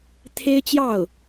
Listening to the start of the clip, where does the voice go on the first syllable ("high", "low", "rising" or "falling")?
high